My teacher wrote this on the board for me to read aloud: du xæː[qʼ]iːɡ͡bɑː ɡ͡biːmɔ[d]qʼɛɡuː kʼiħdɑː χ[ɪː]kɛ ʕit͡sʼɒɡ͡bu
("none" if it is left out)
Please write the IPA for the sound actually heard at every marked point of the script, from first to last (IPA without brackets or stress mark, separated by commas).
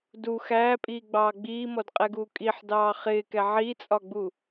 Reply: pʼ, d, ɪː